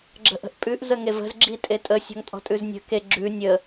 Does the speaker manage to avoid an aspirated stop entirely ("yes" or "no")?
yes